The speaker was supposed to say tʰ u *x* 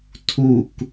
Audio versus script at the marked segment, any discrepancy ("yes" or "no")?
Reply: yes